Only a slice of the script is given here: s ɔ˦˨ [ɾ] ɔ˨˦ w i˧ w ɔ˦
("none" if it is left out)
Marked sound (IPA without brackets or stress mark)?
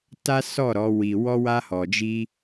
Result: ɾ